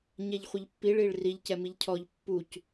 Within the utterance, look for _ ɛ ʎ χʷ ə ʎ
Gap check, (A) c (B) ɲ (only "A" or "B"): B